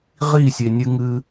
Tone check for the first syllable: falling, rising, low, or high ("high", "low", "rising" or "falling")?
falling